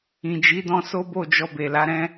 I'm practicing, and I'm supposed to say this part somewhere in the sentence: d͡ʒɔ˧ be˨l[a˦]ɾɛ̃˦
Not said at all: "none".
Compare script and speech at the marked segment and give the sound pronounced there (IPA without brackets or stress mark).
a˨˦